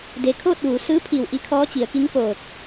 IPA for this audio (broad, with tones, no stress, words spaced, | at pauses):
de˩kʰoː˥˨t̚ ʋu˩˧ sɯː˧˥pʰi˧˩w ʔi˧˥kʰɔː˧˥t͡ɕi˩˧ə̯ki˧˥ŋ poː˧˩k̚